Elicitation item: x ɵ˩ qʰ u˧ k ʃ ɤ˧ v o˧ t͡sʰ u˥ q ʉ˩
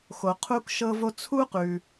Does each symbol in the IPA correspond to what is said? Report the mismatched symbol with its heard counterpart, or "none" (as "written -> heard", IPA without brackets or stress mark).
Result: ɵ˩ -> o˩